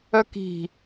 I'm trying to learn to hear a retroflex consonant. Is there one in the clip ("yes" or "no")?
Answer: no